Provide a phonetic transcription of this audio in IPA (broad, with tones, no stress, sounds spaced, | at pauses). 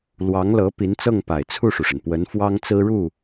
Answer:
l w ɑ˧˥ ŋ l ɤ˧˥ p i˧˥ n t͡s ɤ˥˩ ŋ p a˨˩ ɪ̯ t͡sʰ u˥˩ ʂ u˩ ʂ ə˩ n p w ə˧˥ n f w ɑ˥ ŋ t͡s ɹ̩˥ ɻ u˥˩